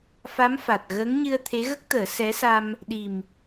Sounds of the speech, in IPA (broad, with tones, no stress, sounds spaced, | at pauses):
f a˧˥ m f a˨˩ t̚ ɣ əː˧˥ ŋ ɲ ɨ˧ ə̯ t̪ʰ e˧˥ ɣ ə˦˥ k̚ t̪ əː˨˩˦ s ɛ˧˥ s a˧ m | ɗ i˨˩ m